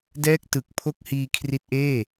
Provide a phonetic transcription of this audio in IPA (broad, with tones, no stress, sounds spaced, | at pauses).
d ɛː˥˩ k̚ t ɯ˨˩ k̚ pʰ o˥˩ k̚ h iː˧ kʰ r i˦˥ t̚ ʔ eː˥˩